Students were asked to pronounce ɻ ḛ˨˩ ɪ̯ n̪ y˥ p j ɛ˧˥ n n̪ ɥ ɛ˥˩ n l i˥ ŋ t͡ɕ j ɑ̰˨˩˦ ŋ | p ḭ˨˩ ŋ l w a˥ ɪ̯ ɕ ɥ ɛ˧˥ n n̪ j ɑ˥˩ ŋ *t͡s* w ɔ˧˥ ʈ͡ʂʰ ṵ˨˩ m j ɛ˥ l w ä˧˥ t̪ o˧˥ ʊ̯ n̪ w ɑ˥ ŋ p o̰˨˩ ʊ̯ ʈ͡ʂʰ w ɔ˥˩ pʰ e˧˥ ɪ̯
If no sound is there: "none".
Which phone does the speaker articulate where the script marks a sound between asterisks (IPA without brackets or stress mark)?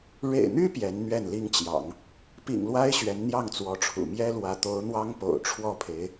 t͡s